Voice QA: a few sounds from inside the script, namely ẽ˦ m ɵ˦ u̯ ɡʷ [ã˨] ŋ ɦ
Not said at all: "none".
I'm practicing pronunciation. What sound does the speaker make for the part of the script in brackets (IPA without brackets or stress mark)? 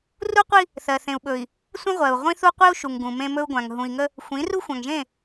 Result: ã˨